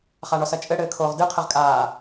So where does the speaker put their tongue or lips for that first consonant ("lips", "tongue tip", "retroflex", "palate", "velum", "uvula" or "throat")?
uvula